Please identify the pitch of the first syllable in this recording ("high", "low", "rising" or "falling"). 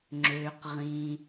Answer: low